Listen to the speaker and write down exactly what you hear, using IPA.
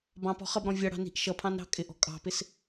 b ɑ̃ p ɔ̤ χ ʌ b ɾ ɔ̃ vʲ ʌ ɽ ɑ̤ n i̤ ʔ ʃ ʌ pʰ ɑ̃ n ɾ ɑ̤ kʼ ɪ ʔ ɔ̤ kʼ ɑ̤ p ɪ s

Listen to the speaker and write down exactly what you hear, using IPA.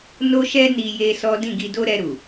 n o˦ ʃ ɛ˦ n i˧ j e˦ s ɔ˦ d ĩ˦˨ ɡ i˧ d o˦ ɾ ɛ˧ ɾ u˨

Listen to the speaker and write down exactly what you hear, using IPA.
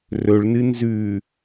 r ɵ ɭ n ɨ n z ʉ

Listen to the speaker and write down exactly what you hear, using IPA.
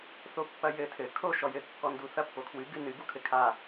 θ o pː ɐ j ɘ tʰ ɘ kʰ o ʃ ɔ j ɘ kː ɔ n d u θ ɐ pː o kʰ w ɨ ɡ ɨ n ɨ ɡ u kʰ ɘ kʰ a

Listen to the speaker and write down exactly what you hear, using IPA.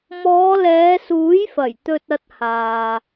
m ɔː˨˧ l ɛː˨˧ s uː˨˥ j f ɐ˨˩ j t̪ ɵ˧ t̚ ɐ˧ t̚ h aː˨

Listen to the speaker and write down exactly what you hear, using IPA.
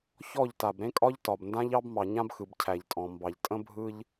ç ɔ˦˨ ʎ t a˨ b ɾ ẽ˦ kʼ ɒ˦ ʎ t ɒ˨ b n d ã˦ ʎ ɑ˦ b m ɑ˨ ɲ ã˦ b x ɯ˨ b cʰ æ˨ ʎ tʼ ɔ̃˨ m b ɑ˨ ʎ tʼ ə̃˦ bʱ ɯ˦ ʎ

